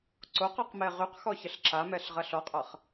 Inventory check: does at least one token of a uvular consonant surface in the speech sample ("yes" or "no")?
yes